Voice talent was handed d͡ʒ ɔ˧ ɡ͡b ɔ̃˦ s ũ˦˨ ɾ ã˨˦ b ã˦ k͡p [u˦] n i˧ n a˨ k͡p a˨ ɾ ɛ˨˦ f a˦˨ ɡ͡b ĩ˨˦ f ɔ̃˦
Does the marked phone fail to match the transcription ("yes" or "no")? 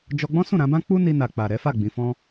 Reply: no